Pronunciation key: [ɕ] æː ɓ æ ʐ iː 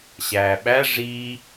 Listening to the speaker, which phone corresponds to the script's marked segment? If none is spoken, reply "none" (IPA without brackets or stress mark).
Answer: ɕ